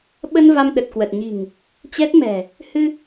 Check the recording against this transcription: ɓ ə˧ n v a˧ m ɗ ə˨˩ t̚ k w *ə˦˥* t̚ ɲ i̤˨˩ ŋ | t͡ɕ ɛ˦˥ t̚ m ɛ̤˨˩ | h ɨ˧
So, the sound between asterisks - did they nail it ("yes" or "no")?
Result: no